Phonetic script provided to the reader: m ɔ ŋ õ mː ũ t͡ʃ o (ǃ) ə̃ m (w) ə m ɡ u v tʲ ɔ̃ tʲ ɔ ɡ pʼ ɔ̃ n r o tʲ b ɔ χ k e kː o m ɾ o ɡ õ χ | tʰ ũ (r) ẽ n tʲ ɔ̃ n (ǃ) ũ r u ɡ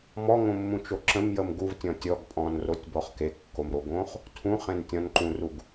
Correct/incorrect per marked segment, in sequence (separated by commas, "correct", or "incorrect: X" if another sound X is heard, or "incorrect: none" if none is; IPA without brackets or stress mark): incorrect: ǁ, incorrect: j, incorrect: χ, correct